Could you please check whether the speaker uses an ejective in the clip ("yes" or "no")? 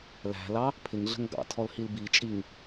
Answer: yes